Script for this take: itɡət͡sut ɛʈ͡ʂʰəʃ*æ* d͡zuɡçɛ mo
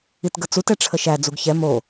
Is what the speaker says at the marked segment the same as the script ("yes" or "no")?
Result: yes